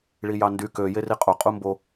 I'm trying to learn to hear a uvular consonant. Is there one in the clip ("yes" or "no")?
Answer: yes